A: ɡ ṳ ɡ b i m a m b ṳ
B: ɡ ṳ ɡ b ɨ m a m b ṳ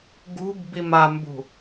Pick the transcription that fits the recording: A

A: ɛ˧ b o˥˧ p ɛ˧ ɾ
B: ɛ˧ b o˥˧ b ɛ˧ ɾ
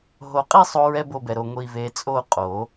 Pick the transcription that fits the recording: B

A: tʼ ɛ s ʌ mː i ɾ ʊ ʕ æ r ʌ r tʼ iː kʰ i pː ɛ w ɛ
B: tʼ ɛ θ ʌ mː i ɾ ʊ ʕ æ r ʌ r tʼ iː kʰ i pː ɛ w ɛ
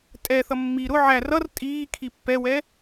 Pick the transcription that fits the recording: B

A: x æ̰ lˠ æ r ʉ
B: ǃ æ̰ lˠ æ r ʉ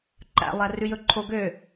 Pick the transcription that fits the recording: B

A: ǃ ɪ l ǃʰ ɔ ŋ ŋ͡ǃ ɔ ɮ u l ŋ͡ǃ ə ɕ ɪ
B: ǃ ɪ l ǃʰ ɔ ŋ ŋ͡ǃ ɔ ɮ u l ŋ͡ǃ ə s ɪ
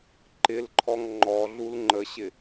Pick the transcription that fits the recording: A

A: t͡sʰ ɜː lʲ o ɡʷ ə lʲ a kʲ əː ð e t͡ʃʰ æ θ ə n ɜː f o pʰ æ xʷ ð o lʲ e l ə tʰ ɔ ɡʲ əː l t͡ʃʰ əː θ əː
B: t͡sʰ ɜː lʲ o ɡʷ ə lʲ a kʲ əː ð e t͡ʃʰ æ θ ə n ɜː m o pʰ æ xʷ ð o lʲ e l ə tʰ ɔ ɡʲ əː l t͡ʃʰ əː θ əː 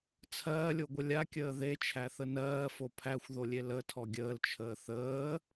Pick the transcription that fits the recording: A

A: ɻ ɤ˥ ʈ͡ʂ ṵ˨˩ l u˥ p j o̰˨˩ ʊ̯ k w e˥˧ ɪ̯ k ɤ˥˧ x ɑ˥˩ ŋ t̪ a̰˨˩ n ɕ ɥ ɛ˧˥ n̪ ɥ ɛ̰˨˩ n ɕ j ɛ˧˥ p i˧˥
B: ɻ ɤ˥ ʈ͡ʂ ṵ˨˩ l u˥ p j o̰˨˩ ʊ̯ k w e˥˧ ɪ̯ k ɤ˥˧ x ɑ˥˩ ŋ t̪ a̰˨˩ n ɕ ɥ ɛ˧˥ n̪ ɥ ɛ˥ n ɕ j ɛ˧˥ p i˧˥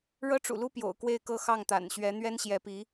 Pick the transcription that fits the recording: B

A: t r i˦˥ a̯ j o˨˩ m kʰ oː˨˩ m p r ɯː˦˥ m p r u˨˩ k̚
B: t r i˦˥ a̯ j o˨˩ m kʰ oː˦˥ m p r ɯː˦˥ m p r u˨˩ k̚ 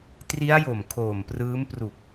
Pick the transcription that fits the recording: A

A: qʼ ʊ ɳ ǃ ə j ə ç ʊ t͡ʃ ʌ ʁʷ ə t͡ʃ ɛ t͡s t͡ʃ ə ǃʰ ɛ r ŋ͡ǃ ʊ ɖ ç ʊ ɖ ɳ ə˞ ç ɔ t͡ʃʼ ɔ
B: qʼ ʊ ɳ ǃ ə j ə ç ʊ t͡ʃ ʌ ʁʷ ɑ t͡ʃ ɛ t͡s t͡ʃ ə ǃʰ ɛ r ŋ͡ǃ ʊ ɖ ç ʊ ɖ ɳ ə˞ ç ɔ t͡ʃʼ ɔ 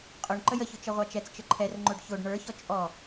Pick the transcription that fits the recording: B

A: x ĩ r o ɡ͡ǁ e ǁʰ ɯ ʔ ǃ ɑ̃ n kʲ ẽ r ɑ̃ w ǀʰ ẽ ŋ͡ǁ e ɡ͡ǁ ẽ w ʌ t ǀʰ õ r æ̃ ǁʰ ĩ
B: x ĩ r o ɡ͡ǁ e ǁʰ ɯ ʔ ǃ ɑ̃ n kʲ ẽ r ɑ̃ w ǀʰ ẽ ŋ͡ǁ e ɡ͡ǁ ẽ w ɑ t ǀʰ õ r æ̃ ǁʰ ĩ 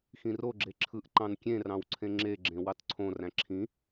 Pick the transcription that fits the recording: B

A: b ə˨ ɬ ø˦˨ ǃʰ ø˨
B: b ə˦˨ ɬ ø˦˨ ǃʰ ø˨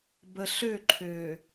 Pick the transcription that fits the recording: A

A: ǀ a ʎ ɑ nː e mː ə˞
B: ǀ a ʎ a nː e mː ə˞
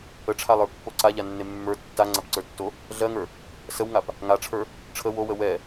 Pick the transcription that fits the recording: B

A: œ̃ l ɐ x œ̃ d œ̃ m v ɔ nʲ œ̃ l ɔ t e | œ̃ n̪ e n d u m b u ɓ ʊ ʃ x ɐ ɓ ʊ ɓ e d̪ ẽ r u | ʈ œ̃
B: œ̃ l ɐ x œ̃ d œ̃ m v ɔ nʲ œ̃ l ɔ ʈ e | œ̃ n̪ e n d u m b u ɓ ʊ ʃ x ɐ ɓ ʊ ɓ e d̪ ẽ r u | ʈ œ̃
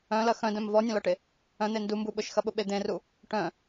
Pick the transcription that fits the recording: B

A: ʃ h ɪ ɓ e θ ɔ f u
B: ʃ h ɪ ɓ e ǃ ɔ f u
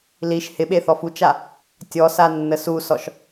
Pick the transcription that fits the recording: A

